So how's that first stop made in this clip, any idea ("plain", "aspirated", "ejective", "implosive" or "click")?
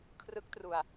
aspirated